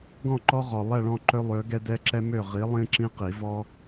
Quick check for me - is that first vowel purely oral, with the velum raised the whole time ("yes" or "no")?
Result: no